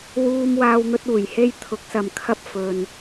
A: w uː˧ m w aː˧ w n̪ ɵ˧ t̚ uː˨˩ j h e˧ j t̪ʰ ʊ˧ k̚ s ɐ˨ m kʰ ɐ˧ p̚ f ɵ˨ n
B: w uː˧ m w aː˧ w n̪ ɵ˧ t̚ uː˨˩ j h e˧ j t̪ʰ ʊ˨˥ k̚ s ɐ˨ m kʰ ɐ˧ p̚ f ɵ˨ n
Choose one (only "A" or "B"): B